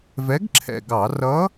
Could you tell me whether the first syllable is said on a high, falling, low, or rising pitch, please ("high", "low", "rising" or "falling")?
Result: rising